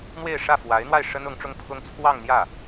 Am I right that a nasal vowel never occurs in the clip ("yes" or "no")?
yes